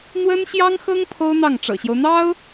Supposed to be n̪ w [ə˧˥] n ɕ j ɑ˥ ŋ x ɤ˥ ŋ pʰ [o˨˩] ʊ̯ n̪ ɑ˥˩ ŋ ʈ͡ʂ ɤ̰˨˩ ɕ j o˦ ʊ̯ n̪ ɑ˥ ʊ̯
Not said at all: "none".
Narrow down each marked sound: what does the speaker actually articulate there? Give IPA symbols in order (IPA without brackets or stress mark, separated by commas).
ə˥, o˥